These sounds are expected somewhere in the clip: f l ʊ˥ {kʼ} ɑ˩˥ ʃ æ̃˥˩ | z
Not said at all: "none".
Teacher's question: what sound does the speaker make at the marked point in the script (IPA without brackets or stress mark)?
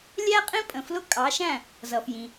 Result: kʼ